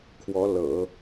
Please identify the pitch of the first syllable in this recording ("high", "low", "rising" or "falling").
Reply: rising